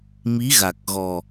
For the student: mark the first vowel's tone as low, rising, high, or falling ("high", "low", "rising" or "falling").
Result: rising